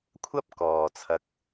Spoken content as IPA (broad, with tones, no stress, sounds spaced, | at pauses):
kʷʰ ɐ˥ p̚ k ɔː˨ t͡sʰ ɐ˧ k̚